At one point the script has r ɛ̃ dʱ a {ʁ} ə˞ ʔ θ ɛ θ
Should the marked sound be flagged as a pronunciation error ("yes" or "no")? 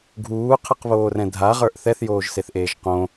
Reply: no